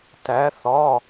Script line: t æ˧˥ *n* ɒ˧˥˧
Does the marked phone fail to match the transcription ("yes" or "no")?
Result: yes